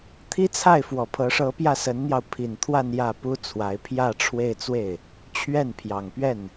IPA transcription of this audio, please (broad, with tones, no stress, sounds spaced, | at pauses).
t̪ʰ i˥ t͡sʰ a˥˩ ɪ̯ f w ɔ˨˩ pʰ ɤ˧˥ ʂ ɤ˧˥ p j ä˥˩ s ə˧˥ n n̪ j ɑ˧ ʊ̯ pʰ i˨˩ n t̪ʰ w a˥˧ n j ä˥˩ p u˥ t͡sʰ w a˧˥ ɪ̯ pʰ j ä˥˧ ʈ͡ʂʰ w e˥˧ ɪ̯ t͡s w e˥˩ ɪ̯ | t͡ɕʰ ɥ ɛ˥˩ n pʰ j ɑ˨˩ ŋ p ɥ ɛ˥˩ n